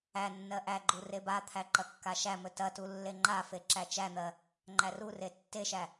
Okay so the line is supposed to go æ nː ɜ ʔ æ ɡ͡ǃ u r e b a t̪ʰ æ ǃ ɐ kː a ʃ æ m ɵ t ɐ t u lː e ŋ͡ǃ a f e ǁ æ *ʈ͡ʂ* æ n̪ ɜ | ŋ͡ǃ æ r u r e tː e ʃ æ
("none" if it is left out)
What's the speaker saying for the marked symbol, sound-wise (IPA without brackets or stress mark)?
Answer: t͡ʃ